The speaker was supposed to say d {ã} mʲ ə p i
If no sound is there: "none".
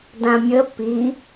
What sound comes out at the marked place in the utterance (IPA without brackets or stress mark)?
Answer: ã